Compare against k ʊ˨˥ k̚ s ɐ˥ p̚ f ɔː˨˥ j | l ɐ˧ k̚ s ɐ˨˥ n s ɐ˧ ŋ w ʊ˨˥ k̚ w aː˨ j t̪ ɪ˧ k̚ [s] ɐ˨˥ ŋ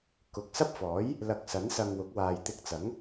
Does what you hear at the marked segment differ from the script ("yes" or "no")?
yes